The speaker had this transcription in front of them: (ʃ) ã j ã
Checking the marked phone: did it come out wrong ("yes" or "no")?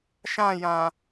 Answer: no